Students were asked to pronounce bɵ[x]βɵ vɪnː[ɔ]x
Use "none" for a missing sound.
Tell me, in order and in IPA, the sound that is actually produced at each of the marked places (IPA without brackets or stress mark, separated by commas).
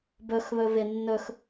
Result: x, ɵ